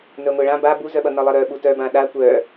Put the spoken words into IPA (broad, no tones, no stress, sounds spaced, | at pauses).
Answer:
n œ ŋʷ ɛ ɭ ã b a b u z œ ɓ ʌ n ʌ lˠ ʌ ɾ œ ɓ u t œ b ã ɗ a kʷ œ